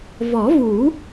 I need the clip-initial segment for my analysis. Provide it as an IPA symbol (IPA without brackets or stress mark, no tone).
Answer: v